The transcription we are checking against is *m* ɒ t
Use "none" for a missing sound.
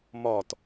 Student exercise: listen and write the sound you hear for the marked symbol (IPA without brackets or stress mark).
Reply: m